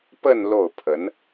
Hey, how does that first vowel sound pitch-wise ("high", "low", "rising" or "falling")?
falling